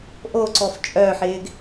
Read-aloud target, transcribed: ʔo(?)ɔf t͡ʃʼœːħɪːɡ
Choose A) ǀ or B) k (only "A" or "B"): A